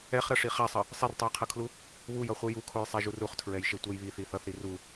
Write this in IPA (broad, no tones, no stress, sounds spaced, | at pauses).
ɛ χ ɾ ʌ ʂ i χ a sˤ ʌ | sˤ i r tˤ u j qʰ ʌ kʰ l u | β u j ʌ χʷ ɯ j u kʰ o j sˤ ɛ ʒ u r u χ tʰ ɹ ɛ j ʃ e tʷ ɛ j β i θ i θ ʌ θ ɾ i r u